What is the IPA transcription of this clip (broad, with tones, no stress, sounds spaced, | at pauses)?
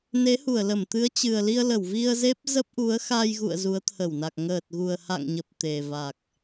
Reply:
n e˨˦ h u˧˩ ə̯ l ə˧˩ m t̪ ɨ˨˦ ə̯ t͡ɕ ɨ˨˩ ə̯ l i˧ ə̯ l ə˧˩ w v i˧ ə̯ z e˦˥ p̚ z ə˦˥ p̚ ʔ u˨˦ ə̯ x a˧ j ɣ ṵ˧˨ ə̯ z u˨˦ ə̯ t̪ʰ ə˧˩ w n a˨˩ k̚ ŋ əː˨˩ t̚ ɣ u˨˩ ə̯ h a̰˧˨ ŋ ɲ ə˨˩ p̚ t̪ e˨˩ v a˨˩ k̚